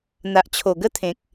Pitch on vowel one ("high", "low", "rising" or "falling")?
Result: low